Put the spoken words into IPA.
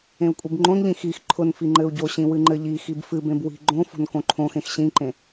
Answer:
ẽ u̯ kʷʼ i b ŋ͡ǃ õ n ʎ ĩ x i x ǃʰ ʊ n f i ŋ͡ǃ ɘ u̯ ɟ o ɕ ĩ w ɨ ŋ͡ǃ ɘ ʎ i x i b f ɨ b ẽ b w i̤ ɡ͡ǃ õ f o̤ n k õ ǃʰ õ x ẽ x ɕ ĩ ǃ ẽ

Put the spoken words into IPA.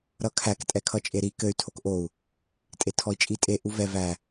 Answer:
ɾ ʌ kʰ æ k tʼ ɛ kʰ ʌ t͡ʃʼ e ɾ i k ɘ y̯ tʰ o k ʔ o u̯ | tʼ e tʰ ɔ i̯ t͡ʃʼ i tʼ e ʔ u v ɛ v æ

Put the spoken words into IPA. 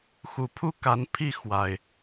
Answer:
x u˨˩ pʰ u˦ k a˨˦ n pʰ i˥˨ x w a˨˩ ɪ̯

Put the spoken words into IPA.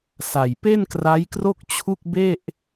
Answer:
s a˨˩ j p e˥˩ n k r a˦˥ j k r o˥˩ k̚ t͡ɕʰ u˥˩ k̚ b e˥˩ ʔ

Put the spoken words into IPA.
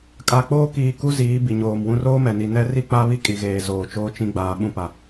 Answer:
kʼ a˨ k͡p oː˦ k iː˨ k u˦ z iː˨˦ b i˨ ɲ oː˨ m w ũ˦ r oː˦ m ɛ˨ n i˨ n ɛ˦ r i˦ k͡p a˦ β i˦ kʼ i˨ ɣ eː˨ z oː˨ t͡ʃ oː˦ t͡ʃ ĩ˦ ɡ͡b aː˨ ɓ ũ˦ p a˨

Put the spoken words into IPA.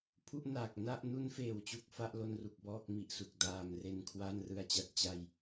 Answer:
pʰ u˥˩ ʔ n aː˨˩ k̚ n a˥˩ ʔ n u˦˥ n f eː˨˩ w t͡ɕ u˨˩ k̚ f a˥˩ ʔ l o˧ n r u˨˩ k̚ b ɔː˥˩ k̚ m i˨˩ ʔ s u˨˩ k̚ d aː˨˩ m r e˧ n kʰ w a˥˩ n r ɯ˨˩ a̯ t͡ɕ a˥˩ t̚ t͡ɕ a˥˩ j

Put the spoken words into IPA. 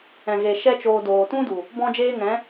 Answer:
ɛ̃˨ ɣ e˨ ʃ ɛ˦ t͡ʃ oː˧ d oː˨ t ũ˦ d u˨ | b ɔ̃˦ d͡ʒ eː˦ ŋ ɛ̃˨˦

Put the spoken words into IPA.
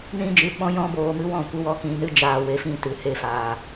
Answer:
n ĩ˦ d͡ʒ ɨ˨˦ ɓ ɔ̃˦ j ɔ̃˦ b oː˧ m ɨ˦ w ɔ̃˦˨ kʷ i˧ w ɔ˧ k ĩ˧ n ɨ˦ d͡ʒ aː˧ w e˨˦ f ĩ˦˨ t ɨ˨ h e˧ f aː˨

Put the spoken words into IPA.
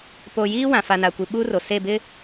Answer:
p o˨ j iː˦ w ã˨ f a˨ n a˨ kʷ i˨ ɓ uː˦ r o˨ s e˦˨ b ɪ˦

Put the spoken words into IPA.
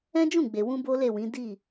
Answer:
ɛ̃˦ d͡ʒ ũ˦˨ ɡ͡b e˨ w ũ˧ b o˦ l e˦˨ w ĩ˨˦ d i˦˨

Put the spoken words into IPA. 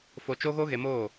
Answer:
f o˧ t͡ʃ o˦ ɣ o˦ ɣ e˧ m oː˦˨

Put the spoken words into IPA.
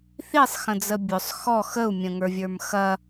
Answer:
θ i sˤ x ə̃ d͡z ə bʲ ʊ sˤ x ɔ x ə u̯ mʲ ə̃ ŋ ə˞ vʲ ə˞ m x ɐ

